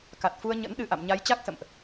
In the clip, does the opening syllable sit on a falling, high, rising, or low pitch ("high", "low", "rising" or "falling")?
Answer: low